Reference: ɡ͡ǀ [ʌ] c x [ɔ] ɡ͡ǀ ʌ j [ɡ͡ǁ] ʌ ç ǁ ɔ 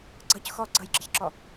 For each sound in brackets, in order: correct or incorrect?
correct, correct, correct

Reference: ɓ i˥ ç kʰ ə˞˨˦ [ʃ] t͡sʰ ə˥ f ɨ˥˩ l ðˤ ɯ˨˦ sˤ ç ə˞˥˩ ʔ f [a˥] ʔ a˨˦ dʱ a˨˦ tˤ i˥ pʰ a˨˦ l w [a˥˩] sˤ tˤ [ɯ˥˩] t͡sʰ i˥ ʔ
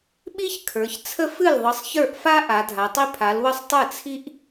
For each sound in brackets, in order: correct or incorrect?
incorrect, correct, incorrect, correct

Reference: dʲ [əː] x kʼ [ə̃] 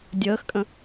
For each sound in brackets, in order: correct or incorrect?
correct, correct

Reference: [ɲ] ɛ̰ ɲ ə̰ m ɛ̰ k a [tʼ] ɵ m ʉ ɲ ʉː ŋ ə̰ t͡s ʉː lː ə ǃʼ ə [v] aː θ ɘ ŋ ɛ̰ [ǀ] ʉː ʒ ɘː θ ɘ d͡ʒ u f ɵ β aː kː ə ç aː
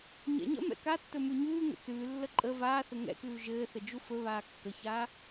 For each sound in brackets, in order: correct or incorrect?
correct, incorrect, correct, incorrect

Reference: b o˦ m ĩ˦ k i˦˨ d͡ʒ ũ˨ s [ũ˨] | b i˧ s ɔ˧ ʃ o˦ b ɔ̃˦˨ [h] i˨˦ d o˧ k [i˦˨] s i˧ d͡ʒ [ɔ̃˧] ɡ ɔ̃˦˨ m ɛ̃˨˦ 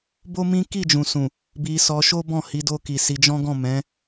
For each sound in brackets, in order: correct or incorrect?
correct, correct, incorrect, incorrect

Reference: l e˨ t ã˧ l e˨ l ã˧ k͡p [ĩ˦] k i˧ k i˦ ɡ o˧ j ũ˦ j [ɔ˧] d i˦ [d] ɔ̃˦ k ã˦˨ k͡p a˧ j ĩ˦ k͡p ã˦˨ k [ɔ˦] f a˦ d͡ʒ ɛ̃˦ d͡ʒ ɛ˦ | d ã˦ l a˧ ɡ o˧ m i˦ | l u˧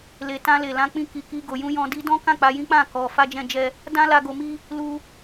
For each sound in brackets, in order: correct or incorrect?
correct, incorrect, correct, incorrect

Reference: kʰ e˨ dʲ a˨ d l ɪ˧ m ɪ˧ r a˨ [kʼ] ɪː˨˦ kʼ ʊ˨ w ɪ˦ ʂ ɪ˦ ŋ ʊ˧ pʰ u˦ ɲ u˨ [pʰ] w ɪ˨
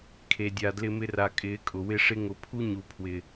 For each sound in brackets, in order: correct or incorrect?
correct, correct

